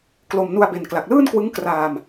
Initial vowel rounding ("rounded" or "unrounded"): rounded